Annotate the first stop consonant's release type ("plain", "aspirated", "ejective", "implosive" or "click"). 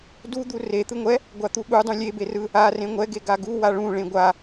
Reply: plain